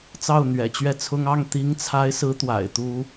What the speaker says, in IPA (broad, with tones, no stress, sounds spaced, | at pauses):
t͡s ɑ˥˩ ʊ̯ n̪ ɥ ɛ̰˨˩ t͡ɕ ɥ ɛ˥˩ t͡sʰ ʊ˥ ŋ ɑ˥˩ ŋ t̪ i˧˥ ŋ t͡sʰ a˧˥ ɪ̯ s ɹ̩˧˥ t̪ w a̰˨˩ ɪ̯ t̪ u˥